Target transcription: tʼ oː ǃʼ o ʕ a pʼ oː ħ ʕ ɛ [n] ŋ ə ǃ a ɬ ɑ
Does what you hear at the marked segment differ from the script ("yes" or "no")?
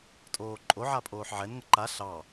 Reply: no